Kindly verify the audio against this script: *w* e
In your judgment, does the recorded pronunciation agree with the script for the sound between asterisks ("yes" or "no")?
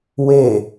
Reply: yes